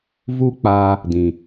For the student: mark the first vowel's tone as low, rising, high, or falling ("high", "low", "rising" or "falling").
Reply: high